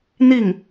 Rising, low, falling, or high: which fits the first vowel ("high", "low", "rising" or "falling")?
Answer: falling